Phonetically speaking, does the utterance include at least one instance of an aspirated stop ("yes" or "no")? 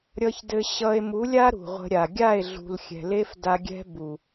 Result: no